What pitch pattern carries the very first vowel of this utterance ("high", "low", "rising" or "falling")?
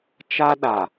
high